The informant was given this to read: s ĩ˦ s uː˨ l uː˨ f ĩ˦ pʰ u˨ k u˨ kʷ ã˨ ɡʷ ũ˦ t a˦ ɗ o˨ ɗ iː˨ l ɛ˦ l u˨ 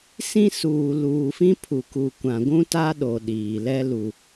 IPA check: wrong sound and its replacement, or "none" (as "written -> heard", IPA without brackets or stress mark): none